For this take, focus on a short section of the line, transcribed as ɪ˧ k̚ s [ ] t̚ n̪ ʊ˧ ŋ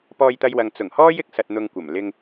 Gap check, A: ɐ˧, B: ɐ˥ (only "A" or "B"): A